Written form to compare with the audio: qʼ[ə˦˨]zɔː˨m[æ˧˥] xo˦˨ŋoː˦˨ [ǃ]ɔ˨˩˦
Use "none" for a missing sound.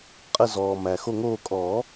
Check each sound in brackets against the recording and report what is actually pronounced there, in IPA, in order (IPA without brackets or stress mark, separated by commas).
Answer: ə˦˨, æ˨, kʼ